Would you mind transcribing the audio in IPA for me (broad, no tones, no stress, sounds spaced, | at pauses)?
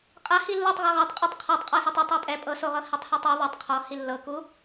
qʼ a h i lː ɤ tˤ ʁ ɛ ʁ a tˤ qʼ ɤ tˤ qʰ ɔ tˤ qʼ a s ɛ tˤ e tˤ ɔ pʼ ɛ pʼ ɤ s o ʁ ɤ h e tˤ h ɤ tˤ u ðˤ e tˤ qʰ ɔ h i lː ɤ k u